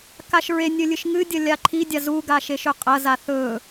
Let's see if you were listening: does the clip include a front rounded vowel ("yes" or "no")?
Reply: no